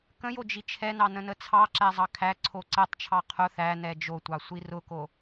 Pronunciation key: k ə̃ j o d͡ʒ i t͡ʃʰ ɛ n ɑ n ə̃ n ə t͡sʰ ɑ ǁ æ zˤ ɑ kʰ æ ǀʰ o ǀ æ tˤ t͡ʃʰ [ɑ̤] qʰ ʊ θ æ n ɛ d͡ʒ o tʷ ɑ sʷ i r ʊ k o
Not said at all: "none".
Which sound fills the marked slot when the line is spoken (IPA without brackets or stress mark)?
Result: ɑ